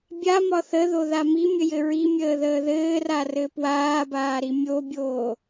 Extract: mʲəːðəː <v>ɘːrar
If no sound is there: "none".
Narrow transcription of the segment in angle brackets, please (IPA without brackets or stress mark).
ð